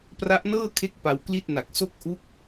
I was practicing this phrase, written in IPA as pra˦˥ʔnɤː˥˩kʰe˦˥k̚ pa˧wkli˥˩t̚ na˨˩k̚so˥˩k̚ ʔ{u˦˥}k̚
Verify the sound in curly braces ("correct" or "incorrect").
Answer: correct